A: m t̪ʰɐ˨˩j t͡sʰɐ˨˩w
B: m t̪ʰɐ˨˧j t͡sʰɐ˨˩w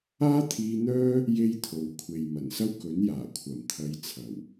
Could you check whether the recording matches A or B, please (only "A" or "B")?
B